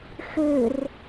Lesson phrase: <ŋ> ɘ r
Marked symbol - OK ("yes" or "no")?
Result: no